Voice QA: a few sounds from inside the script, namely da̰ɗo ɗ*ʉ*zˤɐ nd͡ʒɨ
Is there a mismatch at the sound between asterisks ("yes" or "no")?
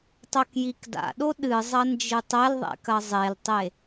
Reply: yes